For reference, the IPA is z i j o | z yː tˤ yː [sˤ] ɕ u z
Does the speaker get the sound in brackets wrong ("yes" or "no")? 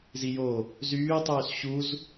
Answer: yes